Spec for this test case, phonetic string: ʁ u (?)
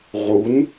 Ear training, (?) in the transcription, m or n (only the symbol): n